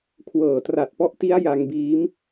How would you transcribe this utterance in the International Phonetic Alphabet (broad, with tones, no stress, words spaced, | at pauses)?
kʰwɤː˨˩tra˨˩t̚pɔ˦˥ʔti˦˥a̯ ja˧ŋbiː˦˥m